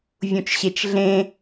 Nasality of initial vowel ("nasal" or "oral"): nasal